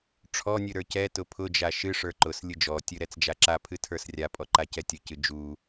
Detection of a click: present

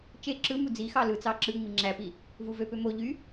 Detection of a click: present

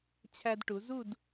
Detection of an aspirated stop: present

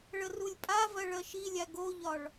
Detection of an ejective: present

